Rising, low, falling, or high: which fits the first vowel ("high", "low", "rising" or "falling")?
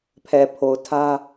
low